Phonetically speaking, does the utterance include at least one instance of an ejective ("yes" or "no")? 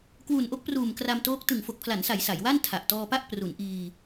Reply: no